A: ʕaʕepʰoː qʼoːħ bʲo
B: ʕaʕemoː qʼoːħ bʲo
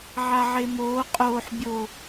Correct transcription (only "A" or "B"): B